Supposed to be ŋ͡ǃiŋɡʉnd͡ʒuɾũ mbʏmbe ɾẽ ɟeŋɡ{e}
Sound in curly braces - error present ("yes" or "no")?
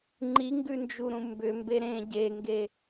no